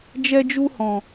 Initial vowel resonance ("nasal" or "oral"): oral